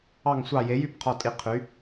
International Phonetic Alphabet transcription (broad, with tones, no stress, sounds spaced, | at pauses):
ɑ˦˨ ŋ sʷ ɑ˦˨ j e˨˥ j y˦˨ b qʰ ɔ˦˨ tʼ i˦˨ qʰ y˨˥